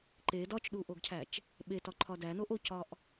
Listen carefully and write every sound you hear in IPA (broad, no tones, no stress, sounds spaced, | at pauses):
ǃ e d ɒ t͡ʃ ɗ u ʔ o ɡ cʰ æ t͡ʃ | ɓ e t ɒ ǃʰ ɒ d æ n o ʔ o c ɒ ʔ